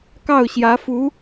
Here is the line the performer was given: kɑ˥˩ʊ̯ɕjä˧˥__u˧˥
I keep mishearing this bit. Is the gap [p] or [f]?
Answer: f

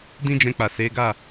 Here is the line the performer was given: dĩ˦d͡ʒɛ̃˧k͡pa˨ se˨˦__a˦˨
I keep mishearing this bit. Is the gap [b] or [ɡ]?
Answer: ɡ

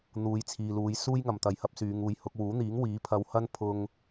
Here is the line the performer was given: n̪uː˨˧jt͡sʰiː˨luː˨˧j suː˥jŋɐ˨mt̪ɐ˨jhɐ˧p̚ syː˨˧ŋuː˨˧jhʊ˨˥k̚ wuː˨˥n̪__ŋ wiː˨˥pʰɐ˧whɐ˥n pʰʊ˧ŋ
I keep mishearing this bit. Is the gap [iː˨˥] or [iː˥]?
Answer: iː˨˥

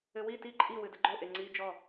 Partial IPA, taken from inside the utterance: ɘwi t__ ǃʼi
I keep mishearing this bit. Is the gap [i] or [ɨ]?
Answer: i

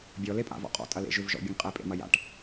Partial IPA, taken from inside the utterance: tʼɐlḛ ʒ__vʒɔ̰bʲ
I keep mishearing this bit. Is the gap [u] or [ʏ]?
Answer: ʏ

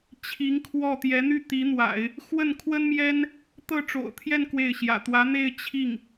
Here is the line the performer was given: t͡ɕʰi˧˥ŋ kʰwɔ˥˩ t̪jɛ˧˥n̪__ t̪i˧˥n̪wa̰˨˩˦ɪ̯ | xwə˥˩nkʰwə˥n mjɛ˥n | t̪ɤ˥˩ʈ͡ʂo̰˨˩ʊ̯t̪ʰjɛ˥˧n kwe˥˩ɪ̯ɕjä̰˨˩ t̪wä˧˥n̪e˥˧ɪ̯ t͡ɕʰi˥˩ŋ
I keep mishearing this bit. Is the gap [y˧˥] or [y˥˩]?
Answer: y˥˩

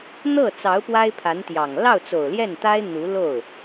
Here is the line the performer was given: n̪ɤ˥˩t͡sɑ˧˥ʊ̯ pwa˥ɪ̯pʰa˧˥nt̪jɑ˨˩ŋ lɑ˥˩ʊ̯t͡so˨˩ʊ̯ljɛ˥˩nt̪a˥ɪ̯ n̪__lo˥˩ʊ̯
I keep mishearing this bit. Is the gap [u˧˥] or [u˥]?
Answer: u˧˥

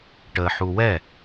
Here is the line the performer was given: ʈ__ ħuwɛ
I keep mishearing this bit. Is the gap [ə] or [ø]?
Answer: ə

